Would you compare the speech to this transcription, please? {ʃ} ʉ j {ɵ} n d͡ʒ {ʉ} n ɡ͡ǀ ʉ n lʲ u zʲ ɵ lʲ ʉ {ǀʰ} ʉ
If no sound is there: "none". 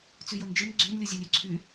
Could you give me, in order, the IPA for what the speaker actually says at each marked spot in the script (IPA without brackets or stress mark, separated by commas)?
t͡s, o, ɨ, ǀʰ